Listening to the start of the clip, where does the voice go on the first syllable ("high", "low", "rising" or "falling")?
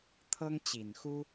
high